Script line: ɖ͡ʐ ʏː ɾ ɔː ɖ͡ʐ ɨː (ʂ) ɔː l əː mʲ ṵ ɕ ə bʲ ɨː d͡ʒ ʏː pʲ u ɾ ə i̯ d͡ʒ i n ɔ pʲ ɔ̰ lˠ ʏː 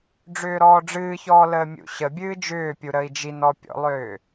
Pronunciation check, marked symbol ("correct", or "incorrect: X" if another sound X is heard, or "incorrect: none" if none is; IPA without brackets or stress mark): incorrect: ç